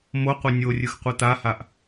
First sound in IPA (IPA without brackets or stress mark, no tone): m